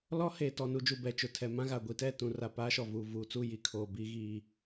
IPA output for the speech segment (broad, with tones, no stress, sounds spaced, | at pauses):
l ɔ˦ h eː˨ t ɔ˨ n u˨ d͡ʒ u˨ b ɛ˨ t͡ʃ ʊ˨ tʰ ɛ˨ m ã˦ ɣ a˨ ɡʷ i˨ t ɛ˦˨ t ũ˨ r a˨ p aː˦ ʃ ɔ˨ v uː˨ v uː˨ t͡s u˦˨ j i˦ kʰ oː˨ b iː˦ ɣ iː˦